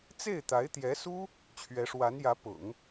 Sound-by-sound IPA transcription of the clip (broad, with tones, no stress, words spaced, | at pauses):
t͡se˥˩ɪ̯t̪a˧˥ɪ̯t̪jɛ˧˥su˥ | t͡ɕʰɥɛ˧˥ʂwa˧˥njä˧˥pʊ̰˨˩˦ŋ